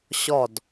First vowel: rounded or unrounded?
rounded